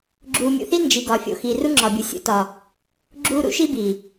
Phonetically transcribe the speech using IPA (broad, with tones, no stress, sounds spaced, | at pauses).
ɡ͡ǁ uː˨ mʲ ṵ˨ θ i˦ n d͡ʒ i˨ ɡ ɒ˨ fʲ o̰˨ x iː˨ r u˦ ŋ͡ǁ ɒː˨ bʲ u˨ sʲ ṵ˦ t ɒ˨ | ɡ͡ǁ uː˦ ɾ ṵ˦ ʃ i˦ b iː˨